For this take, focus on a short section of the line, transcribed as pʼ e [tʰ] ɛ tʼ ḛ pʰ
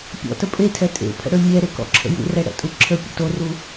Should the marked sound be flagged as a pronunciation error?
no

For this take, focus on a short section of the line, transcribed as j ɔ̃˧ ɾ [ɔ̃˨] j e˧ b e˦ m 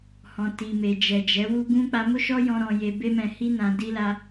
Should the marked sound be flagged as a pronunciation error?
yes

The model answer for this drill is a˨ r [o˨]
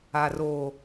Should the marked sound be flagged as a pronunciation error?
yes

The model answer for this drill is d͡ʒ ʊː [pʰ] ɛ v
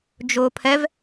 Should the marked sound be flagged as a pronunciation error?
no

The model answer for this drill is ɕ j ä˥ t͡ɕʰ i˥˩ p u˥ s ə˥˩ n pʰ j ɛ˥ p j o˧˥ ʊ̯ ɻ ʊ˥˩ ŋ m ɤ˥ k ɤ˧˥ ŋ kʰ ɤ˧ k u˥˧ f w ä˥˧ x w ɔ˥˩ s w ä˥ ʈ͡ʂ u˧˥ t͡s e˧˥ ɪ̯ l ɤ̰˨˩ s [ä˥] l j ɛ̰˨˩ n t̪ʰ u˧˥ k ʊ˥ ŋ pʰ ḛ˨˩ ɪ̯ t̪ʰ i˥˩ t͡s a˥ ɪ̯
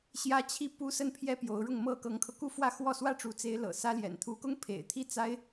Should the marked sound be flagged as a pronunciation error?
no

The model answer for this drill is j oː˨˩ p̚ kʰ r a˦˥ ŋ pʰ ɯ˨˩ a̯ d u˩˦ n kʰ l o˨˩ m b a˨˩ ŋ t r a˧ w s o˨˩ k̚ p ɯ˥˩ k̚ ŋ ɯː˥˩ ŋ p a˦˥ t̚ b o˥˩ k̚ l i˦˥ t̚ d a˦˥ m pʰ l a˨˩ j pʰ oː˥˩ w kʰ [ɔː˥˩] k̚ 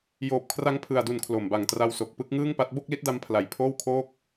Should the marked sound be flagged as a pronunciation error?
yes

